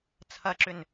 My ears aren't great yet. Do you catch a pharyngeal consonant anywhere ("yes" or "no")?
no